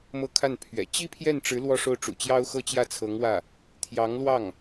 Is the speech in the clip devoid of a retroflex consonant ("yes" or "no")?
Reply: no